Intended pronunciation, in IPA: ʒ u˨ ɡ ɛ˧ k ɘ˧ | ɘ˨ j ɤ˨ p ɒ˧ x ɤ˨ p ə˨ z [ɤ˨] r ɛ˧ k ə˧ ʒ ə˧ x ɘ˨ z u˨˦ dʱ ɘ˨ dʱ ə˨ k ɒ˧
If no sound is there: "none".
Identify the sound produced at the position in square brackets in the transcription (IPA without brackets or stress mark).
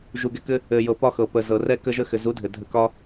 ɤ˨